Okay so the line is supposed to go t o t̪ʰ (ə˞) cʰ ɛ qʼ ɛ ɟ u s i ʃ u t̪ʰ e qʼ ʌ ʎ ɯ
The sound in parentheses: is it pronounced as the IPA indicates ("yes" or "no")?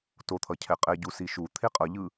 no